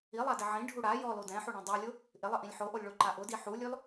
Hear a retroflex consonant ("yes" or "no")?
yes